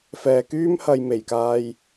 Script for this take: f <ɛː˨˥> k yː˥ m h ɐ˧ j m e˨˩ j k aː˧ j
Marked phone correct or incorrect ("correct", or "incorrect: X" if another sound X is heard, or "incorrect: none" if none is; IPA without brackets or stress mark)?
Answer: incorrect: ɛː˨